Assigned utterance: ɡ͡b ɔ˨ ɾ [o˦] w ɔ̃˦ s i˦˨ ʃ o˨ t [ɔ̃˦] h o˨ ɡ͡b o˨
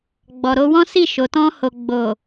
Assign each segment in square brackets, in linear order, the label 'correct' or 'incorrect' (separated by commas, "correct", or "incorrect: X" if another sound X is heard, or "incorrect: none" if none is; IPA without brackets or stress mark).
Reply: incorrect: o˧, incorrect: ɔ̃˧